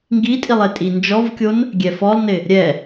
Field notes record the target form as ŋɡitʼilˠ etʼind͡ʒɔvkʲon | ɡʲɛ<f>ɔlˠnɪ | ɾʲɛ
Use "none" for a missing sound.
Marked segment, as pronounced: f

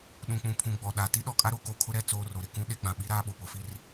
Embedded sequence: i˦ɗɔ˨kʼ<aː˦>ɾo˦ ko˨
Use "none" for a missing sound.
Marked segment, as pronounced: a˦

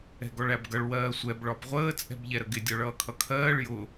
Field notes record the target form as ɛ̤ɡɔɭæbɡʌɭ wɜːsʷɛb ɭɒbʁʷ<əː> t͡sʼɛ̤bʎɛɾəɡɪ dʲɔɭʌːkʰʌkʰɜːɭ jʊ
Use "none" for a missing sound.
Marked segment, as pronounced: əː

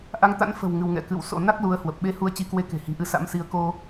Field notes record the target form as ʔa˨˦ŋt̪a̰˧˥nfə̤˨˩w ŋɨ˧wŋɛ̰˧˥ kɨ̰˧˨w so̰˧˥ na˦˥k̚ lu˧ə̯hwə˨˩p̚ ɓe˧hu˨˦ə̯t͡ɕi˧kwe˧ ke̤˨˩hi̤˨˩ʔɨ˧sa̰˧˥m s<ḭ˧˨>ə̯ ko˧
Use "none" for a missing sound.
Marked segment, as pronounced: i˨˦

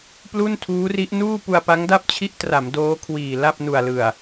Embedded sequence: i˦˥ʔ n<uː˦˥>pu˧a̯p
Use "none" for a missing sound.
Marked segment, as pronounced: uː˥˩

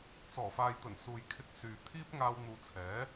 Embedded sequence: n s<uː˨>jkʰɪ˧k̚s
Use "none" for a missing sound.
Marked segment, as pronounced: uː˨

